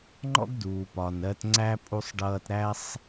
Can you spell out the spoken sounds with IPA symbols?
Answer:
ŋ͡ǃɔ̰˦ɡduː˨ pɒ˨nɜ˧tŋ͡ǀæ˦ pʼu˧sˤɖʌː˧t ɾæ˦sˤ

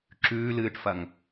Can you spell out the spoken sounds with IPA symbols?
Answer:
ǁʉː lɨːʈfɐŋ

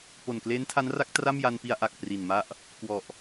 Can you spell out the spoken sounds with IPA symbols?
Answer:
po˨˩nkleː˦˥ntʰa˦˥nra˦˥k̚ tra˥˩mja˧npi˧a̯ ʔa˨˩k̚ pri˨˩nma˥˩ʔ | kwɔ˨˩ʔ

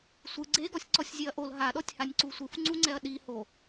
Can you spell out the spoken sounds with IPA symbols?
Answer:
sʷɯ ɡ͡ǀeɡɔsʲ ǀɔsʲzʲeɐ̯ʔol ɦaɗɔtʲhanʲǀu sʷɯfŋ͡ǀuŋ͡ǀɛɐ̯ ɗi ho

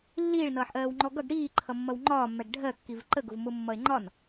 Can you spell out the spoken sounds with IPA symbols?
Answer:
lːiːɭnʌːħʔɜːwŋ͡ǃɔ ɡʌɡ ɽiːǃʰʌmːʌw ŋ͡ǃɒːmːɛɡ ɖʱɜkːiv ǃəɡʊvmʊmːʌe̯ ŋ͡ǃɒn

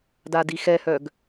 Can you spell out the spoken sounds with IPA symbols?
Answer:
dadixɛhœɡ

